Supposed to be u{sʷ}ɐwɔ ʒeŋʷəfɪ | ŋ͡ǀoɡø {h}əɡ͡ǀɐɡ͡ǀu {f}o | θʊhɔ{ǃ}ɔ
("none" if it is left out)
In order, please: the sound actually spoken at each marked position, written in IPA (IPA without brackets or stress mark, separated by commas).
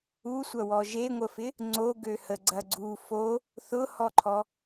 sʷ, h, f, ǃʰ